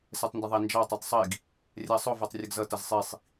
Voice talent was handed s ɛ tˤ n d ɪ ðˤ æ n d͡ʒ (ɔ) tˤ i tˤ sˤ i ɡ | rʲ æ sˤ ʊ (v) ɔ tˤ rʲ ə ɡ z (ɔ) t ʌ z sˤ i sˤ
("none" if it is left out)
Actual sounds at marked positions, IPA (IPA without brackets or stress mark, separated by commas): ɑ, v, ʌ